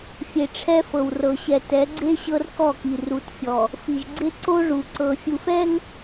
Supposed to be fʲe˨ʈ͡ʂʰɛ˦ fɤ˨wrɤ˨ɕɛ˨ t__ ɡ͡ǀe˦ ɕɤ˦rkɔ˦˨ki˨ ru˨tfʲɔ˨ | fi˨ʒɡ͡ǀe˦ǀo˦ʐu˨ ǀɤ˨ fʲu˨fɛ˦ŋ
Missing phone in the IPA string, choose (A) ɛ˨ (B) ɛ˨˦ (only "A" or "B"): B